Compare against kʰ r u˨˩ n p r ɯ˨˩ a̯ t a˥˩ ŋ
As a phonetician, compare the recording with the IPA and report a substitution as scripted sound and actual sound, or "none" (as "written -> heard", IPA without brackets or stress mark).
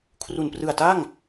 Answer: none